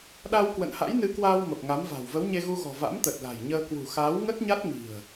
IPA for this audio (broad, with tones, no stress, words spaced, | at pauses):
ɗa˧w kwə̰˧˨nha̰˧˥jnɨ˨˦kwaː˧w mə˨˩p̚ŋa˨˦mva̤˨˩w və˨˦wɲe˧ɣu˧ɣɔ̤˨˩ va̰˧˥mt̪ə˨˩t̚la̤˨˩jɲəː˧ kwṳ˨˩xaː˨˦w ŋə˦˥t̚ɲa˦˥t̚ŋi̤˨˩ə̯